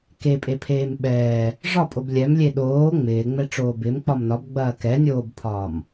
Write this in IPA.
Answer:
k e pʼ e pʰ eː m ɓ ɛː | ʐ ɒ pʼ o b lʲ ɛ m lʲ e ɗ oː ŋ͡m ɪː ŋ͡m ɛ ʈ͡ʂ oː b ɪ m k͡p ɒ m n ɒ b ɡ͡b ɐː k ɛ nʲ oː b pʰ ɒː m

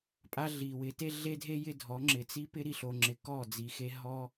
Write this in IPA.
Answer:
pʼ a˦ ɮ i˨ w ɪ˨˦ t e˦ ɮ e˦ dʱ e˦ j ɪ˦ dʱ ɔ˨˦ ŋ͡ǁ ɪ˨ t͡s i˦ p ɪ˦ ɾ i˨ ɬ o˨ ŋ͡ǁ ɪ˨ k ɔ˦˨ d͡z i˨ x e˧ ɦ ɔ˧

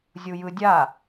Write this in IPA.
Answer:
zʲ u j ɯ dʲ a

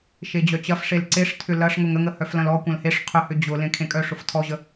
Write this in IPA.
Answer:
ʃ e d͡ʑ œ t͡ɕ ɐ f ʂ e l ǀ e ʂ tʰ ʏ l ɐ ʂ ŋ ʊ ŋ ə ŋ ə h œ f l ɐ̃ l ɔ kʷ ɐ̃ l h e ʂ qʰ ʏ h ʏ d͡ʑ ʊ l ẽ kʰ ẽ kʼ œ ʂ ʊ f tʰ ɔ ʑ ə

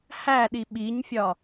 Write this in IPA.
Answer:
h æ ɗ i ɓ i ɲ fʲ ɒ

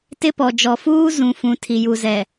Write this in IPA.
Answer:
t ɪ˦ p ɔ˨ d͡ʒ ɔ˨ f uː˦ z ũ˨ f ũ˨ tʰ i˨ j u˨ z ɛ˨

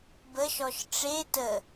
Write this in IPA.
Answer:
b ə ʃ ɔ ʃ ʈ͡ʂ e t ə

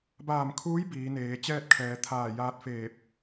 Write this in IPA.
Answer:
b aː˧˩ m kʰ uː˧˥ j b iː˩˧ n eː˩˧ t͡ɕ ɛː˥˨ t̚ kʰ ɛː˩˧ t̪ʰ aː˧˩ j aː˧ t̚ f eː˧˩ p̚

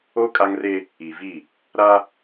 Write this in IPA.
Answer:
o˦ kʼ a˦ ŋ r e˦ | i˨ v i˦˨ | ɾ a˦

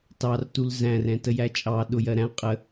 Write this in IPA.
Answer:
t ɑ r t u l z æ̃ r ɛ̃ t ə j æ t͡ʃʼ ɑ ɗ ʊ j ɜ ɾ æ̃ qʼ ə

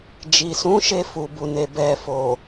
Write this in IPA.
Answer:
d͡ʒ i˨ s ũ˨˦ ʃ e˧ f u˨ b u˨ n e˨ b ɛ˨ f o˨

